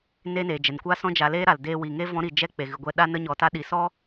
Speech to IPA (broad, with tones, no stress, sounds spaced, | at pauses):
n eː˦ n eː˨ d͡ʒ ɛ˨ n kʷ a˦ s ɔ̃˦ d͡ʒ a˧ l eː˦ ɾ a˨ l d eː˧ w i˨ ŋ e˦ v ɔ̃˦ ɾ i˧ d͡ʒ ɛ˦ k͡p e˨ ɣ ɨ˨ ɡʷ ɛ˧ ɗ a˦ n ə˦ ɲ ɔ˧ t a˦ ɗ i˨ s ɔ˦